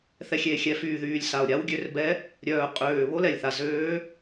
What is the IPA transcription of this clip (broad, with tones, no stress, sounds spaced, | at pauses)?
θ ɛ˨˩ xʲ eː˨˩ xʲ ɛ˨˩ f yː˨˩ ð yː˨˩ lʲ s a˨˩ o̯ ɾʲ a˧˥ w ɡʲ ø˧˥ r b ɛ˧˥ | ɾʲ œː˨˩ qʼ øː˨˩ β o˧˥ l ɛ˨˩ lʲ θ a˨˩ z øː˧˥